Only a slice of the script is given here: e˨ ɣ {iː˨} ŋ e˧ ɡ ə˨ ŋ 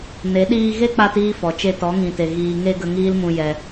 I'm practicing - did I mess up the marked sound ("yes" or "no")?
no